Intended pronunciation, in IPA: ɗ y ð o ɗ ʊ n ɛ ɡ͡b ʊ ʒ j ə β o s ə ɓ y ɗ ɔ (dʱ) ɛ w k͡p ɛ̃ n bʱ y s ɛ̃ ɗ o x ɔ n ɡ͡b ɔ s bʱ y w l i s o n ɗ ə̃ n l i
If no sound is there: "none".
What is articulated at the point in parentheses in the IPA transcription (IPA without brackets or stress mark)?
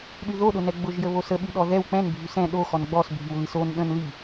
ð